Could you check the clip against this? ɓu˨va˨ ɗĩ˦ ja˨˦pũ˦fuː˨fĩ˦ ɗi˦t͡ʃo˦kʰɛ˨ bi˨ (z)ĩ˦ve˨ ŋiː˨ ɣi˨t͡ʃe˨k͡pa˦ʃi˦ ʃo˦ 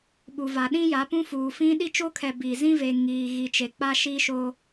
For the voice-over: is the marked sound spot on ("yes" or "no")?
yes